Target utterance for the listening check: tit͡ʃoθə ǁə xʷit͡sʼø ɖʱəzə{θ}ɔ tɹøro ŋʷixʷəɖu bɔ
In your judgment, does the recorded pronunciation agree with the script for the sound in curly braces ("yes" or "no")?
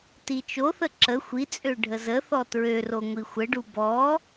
yes